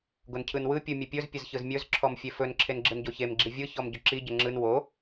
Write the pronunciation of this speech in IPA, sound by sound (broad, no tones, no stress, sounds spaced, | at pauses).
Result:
ɡ o n cʰ ɯ n w ɯ pʲ ɯ mʲ ɘ pʲ ɵ z pʲ ɘ z ç ɯ z mʲ ɵ z ǁʰ ɔ m fʲ e f ɵ n ǁʰ e n ɡ͡ǁ ɯ n ɟ o ç e m ɡ͡ǁ i vʲ ɯ ç ɔ m ɟ ɵ ǁ i ɟ ɘ ŋ͡ǁ ɯ n w o